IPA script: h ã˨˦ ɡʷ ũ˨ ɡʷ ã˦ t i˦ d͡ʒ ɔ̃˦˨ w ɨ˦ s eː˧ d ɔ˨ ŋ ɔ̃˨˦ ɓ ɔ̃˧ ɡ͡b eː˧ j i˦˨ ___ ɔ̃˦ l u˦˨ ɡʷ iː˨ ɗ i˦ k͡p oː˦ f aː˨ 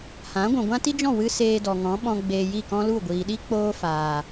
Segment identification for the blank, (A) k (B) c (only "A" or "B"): A